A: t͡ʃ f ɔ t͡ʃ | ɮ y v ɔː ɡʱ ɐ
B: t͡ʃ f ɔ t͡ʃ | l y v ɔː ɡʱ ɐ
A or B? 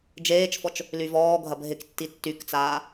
B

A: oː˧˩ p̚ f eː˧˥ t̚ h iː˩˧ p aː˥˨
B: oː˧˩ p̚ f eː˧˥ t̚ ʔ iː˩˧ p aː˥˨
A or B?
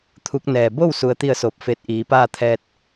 B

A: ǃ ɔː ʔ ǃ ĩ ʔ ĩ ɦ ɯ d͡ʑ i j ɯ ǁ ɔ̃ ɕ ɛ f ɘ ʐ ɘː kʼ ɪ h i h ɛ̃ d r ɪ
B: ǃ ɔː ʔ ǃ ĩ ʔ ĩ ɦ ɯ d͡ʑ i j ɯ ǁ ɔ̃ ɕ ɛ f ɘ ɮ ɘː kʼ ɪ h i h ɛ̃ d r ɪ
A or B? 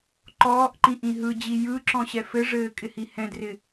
A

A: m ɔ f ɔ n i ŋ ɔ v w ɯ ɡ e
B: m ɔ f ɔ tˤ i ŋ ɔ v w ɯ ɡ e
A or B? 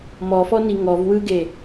A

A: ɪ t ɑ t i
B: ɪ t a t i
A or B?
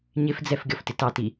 A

